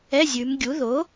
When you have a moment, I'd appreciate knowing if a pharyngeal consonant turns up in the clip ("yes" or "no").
no